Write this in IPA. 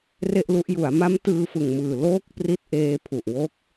r e˥˩ ʔ l u˦˥ ʔ j u˩˦ a̯ m a˦˥ m t ɯː˧ f ɯ˨˩ ŋ m ɯː˨˩ l oː˥˩ k̚ p r i˦˥ t̚ ʔ eː˧ pʰ u˨˩ ʔ w o˦˥ k̚

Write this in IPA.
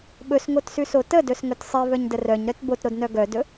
ɓ ɵ s ŋ o t s ʉ s o t ə d ɵ s ŋ ɵ t sˤ i v œ ɲ d ə r œ ɲ ɾ œ t b o t ɾ o d n œ ɡ œ d ɵ

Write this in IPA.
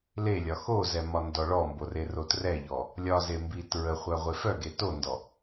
l e lʲ ɒ x o z ɛ m ɒ n d ɔ ɭ ɔ m b o r e r o t r ɛ ʎ ɔ | lʲ ɒ z e m b i t ɹ ə χʷ œ ʁʷ e f œ ɡ e t o n d ɔ

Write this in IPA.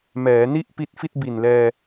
m ɛː˩˦ n i˥˩ ʔ p i˦˥ t̚ f i˥˩ t̚ b i˨˩ n l ɛː˧

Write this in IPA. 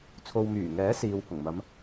t͡sʰ o˨ w m yː˨˩ ŋ ɛː˨˥ s iː˨ w h ʊ˨˩ ŋ m ɐ˨˧ m

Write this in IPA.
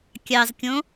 kʲ ɑ z kʲ õ

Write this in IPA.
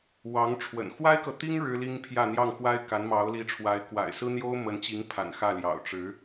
w ɑ˧˥ ŋ ʈ͡ʂʰ w ə̰˨˩ n x w a˥ ɪ̯ k ɤ˨ t̪ i˥ ŋ ɻ ɻ̩˥ l i˥ ŋ pʰ j ä˥˧ n̪ j ɑ˥˩ ŋ x w a˥ ɪ̯ k a˧˥ n m ɑ˧˥ ʊ̯ l i˧˥ ʈ͡ʂʰ w a˧˥ ɪ̯ k w a̰˨˩ ɪ̯ s ɹ̩˥ n̪ j o˥ ʊ̯ m ə˧˥ n t͡ɕ i˧˥ ŋ pʰ a̰˨˩ n x ä˥˩ l j ɑ̰˨˩ ʊ̯ ʈ͡ʂ ɻ̩˧˥

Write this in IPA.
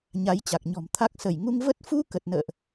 ɲ a˨˦ j t͡ɕ a˨˩ k̚ ɲ ɔ̤˨˩ m t̪ʰ a˦˥ k̚ s ə˧˩ j ŋ u˧ ŋ v ə˦˥ t̚ f u˧ k ə˨˩ t̚ n ə̰ː˧˨ ʔ

